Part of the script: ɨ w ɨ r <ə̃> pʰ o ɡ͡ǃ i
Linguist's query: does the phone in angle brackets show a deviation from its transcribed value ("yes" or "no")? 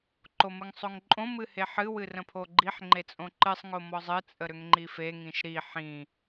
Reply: no